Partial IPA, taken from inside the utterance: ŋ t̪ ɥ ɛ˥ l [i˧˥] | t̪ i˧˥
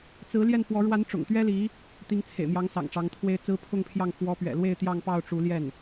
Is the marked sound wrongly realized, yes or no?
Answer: no